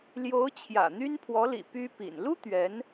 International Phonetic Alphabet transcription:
l j o˧˥ ʊ̯ t͡ɕʰ j ä̰˨˩ n̪ y˥ n pʰ w ɔ˧˥ l ḭ˨˩ p y˥ p ḭ˨˩ n l u˥ t̪ ɥ ɛ˧˥ n

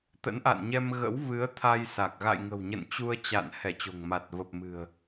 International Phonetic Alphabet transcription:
t̪ ə̰˧˥ n ʔ a̰˧˨ n ɲ ɛ˧ m ɣ ə̰˧˥ w v ɨ˨˦ ə̯ t̪ʰ a˧ j s a˨˩ k̚ ɣ a̰˧˨ j ŋ ə̤˨˩ w ɲ ə̰˧˨ n t͡ɕ u˧ ə̯ t͡ɕ a̰˧˨ n h ɛ˧˩ t͡ɕ o̤˨˩ ŋ m a˨˩ t̚ v ə˨˩ p̚ m ɨ̤˨˩ ə̯

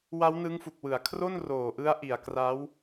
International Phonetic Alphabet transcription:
w a˦˥ w n ɯ˦˥ ŋ f u˨˩ k̚ w ɯ˩˦ a̯ kʰ r o˥˩ n r oː˨˩ ʔ ɯ˦˥ a̯ ʔ i˨˩ a̯ k r a˦˥ w

